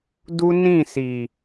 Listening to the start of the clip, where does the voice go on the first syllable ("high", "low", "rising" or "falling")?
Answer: high